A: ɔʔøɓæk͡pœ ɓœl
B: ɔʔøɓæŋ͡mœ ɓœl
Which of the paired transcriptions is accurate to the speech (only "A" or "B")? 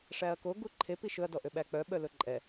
A